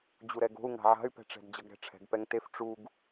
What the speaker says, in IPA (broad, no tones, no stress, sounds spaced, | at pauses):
d͡ʑ u ɾ ɛ ɡ o̤ u̯ ŋ a̤ ʕ a̤ y̯ p ɛ̤ ʈ͡ʂ ɛ̤ d d͡ʑ ʌ ɡ ɾ ɛ̤ ʈ͡ʂʰ ɛ̤ ɡ p ɛ ŋ t e f ʈ͡ʂ u ɡ